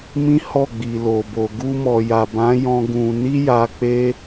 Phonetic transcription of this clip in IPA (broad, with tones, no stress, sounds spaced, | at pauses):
m ĩ˦ h ɔ˦˨ ɡ͡b i˨ l o˨ b o˨ ɡ u˧ m ɔ˨ j a˨ b ã˨˦ j ɔ̃˧ ɡ ũ˧ n i˦ j a˧ k͡p e˦